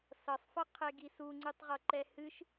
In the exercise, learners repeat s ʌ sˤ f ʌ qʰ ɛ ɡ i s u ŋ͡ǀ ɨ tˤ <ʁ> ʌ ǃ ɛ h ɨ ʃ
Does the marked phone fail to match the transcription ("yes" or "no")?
no